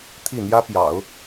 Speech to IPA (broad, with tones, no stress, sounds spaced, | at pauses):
t̪ʰ i˥˩ n̪ j ä˥ p j ɑ̰˨˩˦ ʊ̯